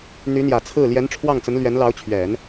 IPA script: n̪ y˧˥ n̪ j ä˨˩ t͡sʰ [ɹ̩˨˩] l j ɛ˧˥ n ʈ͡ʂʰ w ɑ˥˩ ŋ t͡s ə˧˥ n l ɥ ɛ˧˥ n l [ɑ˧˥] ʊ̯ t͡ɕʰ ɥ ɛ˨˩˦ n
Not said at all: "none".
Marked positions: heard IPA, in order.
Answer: ɹ̩˥˩, ɑ˧˥

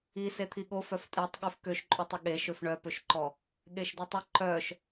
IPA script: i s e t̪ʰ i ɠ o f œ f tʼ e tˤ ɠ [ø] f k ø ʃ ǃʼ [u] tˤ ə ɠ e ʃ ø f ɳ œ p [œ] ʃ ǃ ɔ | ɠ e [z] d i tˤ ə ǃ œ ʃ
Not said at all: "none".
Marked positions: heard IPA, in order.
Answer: ʉ, ʉ, ø, ʃ

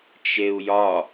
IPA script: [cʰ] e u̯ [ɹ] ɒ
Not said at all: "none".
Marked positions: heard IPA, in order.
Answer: t͡ʃ, j

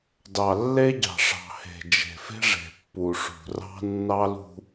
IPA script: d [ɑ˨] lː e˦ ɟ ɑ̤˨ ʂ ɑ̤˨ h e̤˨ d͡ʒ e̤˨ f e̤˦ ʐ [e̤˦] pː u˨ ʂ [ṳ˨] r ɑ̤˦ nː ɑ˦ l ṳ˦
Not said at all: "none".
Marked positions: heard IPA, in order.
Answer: ɑ˨, e̤˨, ṳ˨

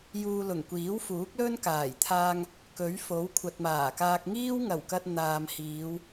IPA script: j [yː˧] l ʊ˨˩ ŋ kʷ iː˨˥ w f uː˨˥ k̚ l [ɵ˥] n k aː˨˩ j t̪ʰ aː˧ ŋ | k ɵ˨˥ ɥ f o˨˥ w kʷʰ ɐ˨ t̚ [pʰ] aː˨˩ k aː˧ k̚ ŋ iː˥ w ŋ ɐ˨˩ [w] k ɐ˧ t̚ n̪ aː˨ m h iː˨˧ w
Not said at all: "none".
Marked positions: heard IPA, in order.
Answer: uː˧, ɵ˥, m, w

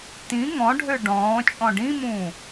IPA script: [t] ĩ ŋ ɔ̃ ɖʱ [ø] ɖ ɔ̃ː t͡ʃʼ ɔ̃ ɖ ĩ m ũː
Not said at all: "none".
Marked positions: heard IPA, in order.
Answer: t, ø

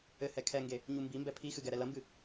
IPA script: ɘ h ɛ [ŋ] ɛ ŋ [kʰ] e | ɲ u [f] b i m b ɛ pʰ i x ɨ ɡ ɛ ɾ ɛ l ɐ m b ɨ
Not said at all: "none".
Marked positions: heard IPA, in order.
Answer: kʰ, ɡ, m

